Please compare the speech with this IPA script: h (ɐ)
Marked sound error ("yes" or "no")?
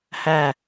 yes